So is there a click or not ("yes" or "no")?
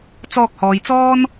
no